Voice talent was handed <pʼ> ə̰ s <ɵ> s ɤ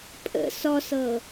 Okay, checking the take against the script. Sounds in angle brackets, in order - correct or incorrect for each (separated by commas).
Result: correct, incorrect